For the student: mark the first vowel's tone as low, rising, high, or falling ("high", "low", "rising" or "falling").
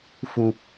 low